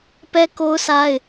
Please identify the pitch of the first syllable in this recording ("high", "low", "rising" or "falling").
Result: high